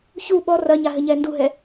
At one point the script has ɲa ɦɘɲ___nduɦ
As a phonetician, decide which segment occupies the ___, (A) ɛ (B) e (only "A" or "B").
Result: A